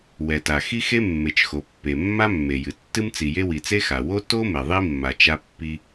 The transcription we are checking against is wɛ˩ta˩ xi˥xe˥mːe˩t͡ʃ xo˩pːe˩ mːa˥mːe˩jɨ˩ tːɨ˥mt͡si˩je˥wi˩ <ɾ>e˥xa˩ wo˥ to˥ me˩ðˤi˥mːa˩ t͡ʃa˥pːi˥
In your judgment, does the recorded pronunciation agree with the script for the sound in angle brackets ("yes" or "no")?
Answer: no